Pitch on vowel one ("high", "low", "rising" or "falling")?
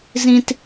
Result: high